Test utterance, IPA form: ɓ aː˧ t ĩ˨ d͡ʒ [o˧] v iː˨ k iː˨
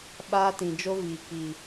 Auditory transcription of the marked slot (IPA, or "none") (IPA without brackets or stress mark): o˧